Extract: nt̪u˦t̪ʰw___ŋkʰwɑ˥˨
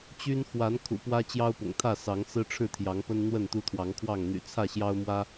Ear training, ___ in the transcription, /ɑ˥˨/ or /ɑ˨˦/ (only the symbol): ɑ˨˦